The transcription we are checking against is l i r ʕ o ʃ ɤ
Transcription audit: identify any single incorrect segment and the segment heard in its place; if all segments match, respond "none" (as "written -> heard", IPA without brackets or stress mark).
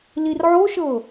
none